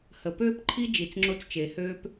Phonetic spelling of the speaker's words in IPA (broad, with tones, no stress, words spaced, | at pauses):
hə˨ pøː˦pǃʰi˦ d͡ʒi˨t͡sŋ͡ǁo˦t͡st͡ʃe˨ høː˦p